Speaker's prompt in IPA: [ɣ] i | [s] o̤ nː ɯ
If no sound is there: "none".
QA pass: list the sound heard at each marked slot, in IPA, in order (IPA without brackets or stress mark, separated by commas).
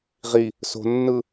ʁ, s